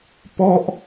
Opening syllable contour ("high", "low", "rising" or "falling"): falling